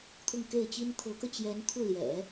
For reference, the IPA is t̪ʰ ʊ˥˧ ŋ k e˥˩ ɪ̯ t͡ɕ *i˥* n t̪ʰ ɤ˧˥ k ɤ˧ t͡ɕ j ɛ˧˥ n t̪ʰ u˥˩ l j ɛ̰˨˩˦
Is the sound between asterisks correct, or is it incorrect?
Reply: correct